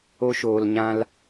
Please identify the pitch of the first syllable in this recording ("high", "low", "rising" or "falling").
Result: high